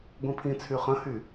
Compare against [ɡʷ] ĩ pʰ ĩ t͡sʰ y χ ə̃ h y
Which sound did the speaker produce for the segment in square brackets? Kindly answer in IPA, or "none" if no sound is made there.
ɡʷ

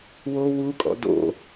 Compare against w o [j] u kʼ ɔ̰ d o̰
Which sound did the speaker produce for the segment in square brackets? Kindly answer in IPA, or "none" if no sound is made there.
w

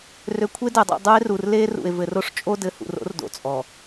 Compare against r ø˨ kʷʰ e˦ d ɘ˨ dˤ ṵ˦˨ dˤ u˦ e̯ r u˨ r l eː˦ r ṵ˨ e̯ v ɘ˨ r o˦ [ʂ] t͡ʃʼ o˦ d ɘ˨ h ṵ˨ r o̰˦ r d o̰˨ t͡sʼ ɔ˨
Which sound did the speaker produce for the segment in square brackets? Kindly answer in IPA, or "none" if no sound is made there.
ʂ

